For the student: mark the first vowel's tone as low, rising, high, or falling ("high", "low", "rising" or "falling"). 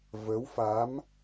rising